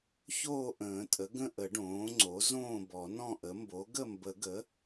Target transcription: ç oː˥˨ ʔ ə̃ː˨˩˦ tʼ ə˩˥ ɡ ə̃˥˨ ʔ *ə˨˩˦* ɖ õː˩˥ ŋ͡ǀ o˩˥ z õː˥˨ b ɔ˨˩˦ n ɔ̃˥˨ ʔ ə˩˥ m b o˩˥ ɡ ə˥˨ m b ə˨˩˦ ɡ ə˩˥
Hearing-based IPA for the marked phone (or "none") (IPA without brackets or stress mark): ə˨˩˦